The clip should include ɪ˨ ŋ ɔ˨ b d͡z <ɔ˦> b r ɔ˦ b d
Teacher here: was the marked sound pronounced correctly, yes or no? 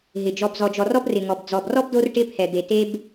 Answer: no